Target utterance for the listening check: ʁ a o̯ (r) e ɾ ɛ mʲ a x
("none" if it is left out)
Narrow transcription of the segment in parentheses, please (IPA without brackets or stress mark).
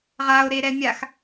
ɾ